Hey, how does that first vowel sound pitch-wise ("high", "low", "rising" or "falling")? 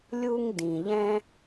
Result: high